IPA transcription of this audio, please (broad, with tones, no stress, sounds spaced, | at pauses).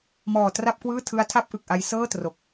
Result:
m ɔː˨˩ t r a˥˩ p̚ k w ɯː˥˩ tʰ ɯ˦˥ a̯ tʰ a˥˩ p̚ ʔ ɯ˨˩ k̚ ʔ a˦˥ j s ɤː˥˩ t r o˨˩ k̚